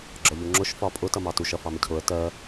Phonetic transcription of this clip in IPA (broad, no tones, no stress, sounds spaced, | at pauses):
ɡ͡ǁ ɒ ʎ u ŋ͡ǁ ʊ ʃ f ɒ pʼ ʊ t ʌ m ɑ t u ʃ ʌ f ɑ m ɪ cʰ ʊ ə̯ t ɜ